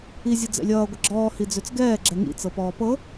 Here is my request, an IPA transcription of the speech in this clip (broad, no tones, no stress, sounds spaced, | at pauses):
i zʲ ɤ d͡z ɛ̰ lʲ ʌː ɡʷ ə ɡ͡ǁ ɔː h i d͡z ø t͡s ɡ ɛː ɡ͡ǁ ɛ ŋ ḭ t͡s ɤ p ɔː p ɤ